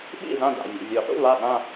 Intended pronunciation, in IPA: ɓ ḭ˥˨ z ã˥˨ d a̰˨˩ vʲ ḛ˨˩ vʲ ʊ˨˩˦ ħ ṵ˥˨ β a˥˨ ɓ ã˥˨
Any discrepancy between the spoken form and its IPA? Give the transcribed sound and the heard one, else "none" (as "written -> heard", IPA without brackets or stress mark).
none